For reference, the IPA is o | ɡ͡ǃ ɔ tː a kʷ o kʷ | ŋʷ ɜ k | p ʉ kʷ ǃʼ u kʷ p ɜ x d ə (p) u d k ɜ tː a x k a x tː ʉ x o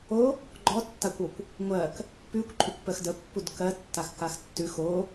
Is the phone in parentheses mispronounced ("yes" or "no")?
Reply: yes